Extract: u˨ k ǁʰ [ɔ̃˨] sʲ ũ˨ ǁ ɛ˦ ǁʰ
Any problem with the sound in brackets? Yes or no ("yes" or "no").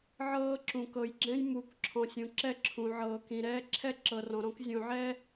no